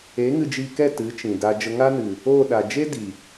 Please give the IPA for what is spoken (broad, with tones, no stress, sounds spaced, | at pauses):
e˨˦ ŋ ɨ˧ d͡ʒ i˧ k ɛ˦˨ t ɨ˨˦ t͡ʃ ĩ˨ d a˧ d͡ʒ ə˧ ŋ a˦ n ɨ˨ | oː˦˨ ɗ a˨ d͡ʒ e˦ d i˨